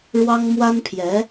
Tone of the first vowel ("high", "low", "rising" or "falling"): high